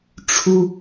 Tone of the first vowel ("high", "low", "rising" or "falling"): high